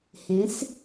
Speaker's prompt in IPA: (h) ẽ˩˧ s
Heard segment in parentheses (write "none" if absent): h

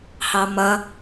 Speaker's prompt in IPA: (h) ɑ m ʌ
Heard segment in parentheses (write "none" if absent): h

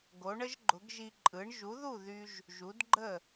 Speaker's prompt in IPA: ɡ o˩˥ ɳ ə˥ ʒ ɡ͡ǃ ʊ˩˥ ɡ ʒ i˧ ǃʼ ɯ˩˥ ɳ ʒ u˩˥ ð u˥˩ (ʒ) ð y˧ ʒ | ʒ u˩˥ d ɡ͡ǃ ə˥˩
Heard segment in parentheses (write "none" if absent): none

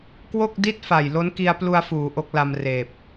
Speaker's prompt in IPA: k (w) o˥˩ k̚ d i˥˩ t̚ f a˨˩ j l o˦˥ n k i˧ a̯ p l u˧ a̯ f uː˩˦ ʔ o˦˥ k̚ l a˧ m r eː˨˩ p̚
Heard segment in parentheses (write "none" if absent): w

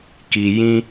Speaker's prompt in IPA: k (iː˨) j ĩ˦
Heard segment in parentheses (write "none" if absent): i˨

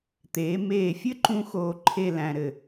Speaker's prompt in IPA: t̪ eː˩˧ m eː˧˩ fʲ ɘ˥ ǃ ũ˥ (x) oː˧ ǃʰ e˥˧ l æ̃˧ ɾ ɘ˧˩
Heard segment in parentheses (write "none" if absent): x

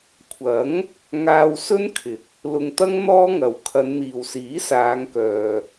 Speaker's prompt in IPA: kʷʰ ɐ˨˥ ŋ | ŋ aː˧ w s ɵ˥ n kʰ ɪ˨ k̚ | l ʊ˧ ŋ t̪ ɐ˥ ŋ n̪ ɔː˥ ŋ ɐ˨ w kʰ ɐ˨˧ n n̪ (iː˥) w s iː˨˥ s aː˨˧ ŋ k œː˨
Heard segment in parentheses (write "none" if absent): iː˨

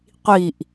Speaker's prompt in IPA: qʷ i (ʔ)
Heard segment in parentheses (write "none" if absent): ʔ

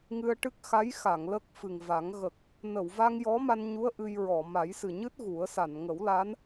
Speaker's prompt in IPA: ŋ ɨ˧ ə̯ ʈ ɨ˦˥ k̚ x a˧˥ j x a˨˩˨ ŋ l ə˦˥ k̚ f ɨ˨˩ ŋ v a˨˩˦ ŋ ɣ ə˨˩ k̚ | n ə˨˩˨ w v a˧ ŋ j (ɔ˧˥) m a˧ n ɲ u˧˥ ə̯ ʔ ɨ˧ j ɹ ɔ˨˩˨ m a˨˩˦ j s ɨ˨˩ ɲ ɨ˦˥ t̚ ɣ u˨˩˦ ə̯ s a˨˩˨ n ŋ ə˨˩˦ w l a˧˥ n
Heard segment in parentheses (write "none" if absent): ɔ˧˥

